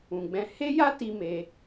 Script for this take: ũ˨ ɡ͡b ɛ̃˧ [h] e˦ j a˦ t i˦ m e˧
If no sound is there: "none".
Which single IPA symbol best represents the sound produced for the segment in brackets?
h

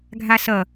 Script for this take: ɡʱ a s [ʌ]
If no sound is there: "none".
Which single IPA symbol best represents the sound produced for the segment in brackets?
ʌ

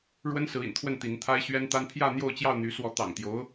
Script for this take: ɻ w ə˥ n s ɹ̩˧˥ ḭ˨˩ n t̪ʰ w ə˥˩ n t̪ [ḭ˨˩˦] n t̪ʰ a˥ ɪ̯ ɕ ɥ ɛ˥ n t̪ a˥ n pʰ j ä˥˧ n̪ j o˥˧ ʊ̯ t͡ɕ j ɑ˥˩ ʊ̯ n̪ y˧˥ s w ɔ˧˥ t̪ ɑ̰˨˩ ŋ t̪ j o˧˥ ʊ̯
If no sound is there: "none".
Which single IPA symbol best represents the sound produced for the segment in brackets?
i˧˥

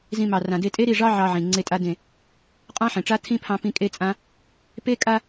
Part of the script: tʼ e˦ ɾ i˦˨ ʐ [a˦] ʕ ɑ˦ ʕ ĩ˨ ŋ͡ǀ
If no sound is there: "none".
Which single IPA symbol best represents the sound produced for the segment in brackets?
ɑ˦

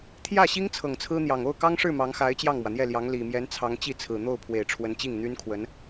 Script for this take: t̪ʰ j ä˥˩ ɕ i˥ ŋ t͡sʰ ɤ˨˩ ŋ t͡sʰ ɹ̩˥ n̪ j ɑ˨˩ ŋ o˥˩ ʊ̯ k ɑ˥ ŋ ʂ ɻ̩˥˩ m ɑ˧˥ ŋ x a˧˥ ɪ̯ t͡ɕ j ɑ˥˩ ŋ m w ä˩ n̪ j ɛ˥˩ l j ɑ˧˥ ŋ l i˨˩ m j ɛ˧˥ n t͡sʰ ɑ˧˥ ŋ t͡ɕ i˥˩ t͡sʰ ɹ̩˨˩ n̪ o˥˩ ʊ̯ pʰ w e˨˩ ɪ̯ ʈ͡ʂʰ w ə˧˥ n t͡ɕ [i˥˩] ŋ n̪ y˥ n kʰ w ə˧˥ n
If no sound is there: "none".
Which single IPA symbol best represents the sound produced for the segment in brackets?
i˥˩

